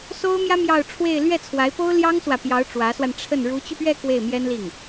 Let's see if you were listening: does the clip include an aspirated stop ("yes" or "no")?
yes